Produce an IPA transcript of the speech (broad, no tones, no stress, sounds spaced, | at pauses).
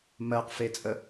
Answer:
m ɜ q f e t͡sʼ ə